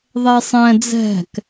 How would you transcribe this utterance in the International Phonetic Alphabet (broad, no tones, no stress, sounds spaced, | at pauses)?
ðˤ ɛ sˤ ɛ̃ d͡z ɛ̤ k